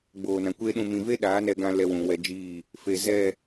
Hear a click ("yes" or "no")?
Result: no